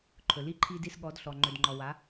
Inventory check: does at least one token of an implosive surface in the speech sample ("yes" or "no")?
yes